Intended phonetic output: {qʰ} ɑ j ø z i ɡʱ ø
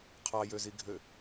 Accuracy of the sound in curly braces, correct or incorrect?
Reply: correct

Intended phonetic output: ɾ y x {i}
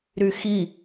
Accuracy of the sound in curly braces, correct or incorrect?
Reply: correct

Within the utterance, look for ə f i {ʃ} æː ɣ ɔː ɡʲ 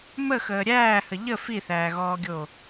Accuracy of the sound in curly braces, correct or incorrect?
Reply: incorrect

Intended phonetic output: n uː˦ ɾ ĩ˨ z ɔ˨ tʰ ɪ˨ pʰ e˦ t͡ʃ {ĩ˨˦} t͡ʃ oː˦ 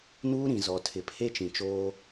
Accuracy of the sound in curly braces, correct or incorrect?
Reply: incorrect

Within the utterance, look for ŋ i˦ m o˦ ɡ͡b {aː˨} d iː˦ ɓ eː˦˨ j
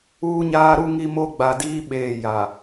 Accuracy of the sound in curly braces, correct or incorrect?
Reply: incorrect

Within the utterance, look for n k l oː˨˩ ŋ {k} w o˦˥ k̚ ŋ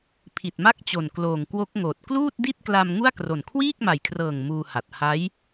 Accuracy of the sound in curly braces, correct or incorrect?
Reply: correct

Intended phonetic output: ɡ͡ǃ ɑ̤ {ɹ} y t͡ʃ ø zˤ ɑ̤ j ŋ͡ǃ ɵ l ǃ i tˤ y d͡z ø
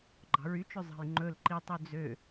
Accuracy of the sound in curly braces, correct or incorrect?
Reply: correct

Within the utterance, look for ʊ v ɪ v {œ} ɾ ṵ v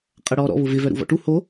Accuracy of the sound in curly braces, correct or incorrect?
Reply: correct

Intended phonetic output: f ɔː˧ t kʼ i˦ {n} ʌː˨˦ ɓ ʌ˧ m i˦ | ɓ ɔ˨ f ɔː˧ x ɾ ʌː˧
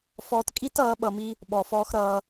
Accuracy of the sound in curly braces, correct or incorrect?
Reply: incorrect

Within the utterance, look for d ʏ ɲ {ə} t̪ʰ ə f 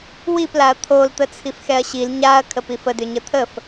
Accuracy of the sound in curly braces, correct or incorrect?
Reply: correct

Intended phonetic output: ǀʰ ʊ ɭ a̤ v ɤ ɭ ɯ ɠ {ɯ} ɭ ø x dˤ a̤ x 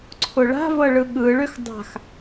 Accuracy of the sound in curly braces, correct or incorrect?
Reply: correct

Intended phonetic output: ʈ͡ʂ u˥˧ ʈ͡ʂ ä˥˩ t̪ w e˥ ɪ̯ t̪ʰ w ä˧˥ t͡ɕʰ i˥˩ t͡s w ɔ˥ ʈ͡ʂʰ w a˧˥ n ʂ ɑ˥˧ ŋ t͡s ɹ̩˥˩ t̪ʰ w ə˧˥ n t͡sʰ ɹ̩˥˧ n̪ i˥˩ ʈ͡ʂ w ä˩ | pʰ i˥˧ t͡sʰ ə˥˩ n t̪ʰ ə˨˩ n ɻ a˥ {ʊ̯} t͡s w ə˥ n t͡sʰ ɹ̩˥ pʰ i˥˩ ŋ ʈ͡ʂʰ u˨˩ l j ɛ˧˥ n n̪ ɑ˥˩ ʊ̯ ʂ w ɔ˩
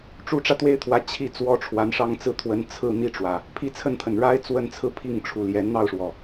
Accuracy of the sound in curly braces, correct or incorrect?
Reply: incorrect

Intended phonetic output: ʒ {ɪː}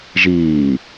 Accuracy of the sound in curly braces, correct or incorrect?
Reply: incorrect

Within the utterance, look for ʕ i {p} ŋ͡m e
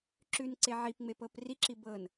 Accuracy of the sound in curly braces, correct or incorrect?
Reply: correct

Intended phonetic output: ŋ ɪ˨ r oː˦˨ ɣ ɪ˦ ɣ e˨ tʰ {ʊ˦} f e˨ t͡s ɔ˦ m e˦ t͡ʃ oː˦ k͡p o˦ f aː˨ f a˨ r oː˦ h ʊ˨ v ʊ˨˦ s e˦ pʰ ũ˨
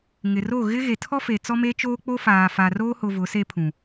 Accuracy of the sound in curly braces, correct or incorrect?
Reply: incorrect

